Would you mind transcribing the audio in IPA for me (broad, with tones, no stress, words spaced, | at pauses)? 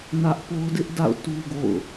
nä˦ʔ po˦ʊ̯dɪ˦ʔda̰˦˨ʊ̯ tu˦ɡo̰˦˨ʊ̯